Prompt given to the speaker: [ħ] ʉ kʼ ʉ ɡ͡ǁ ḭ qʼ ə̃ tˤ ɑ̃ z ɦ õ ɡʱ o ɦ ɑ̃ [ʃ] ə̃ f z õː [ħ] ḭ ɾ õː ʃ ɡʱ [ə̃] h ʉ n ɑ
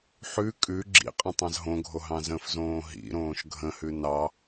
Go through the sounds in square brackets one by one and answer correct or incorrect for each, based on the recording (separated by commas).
correct, incorrect, incorrect, correct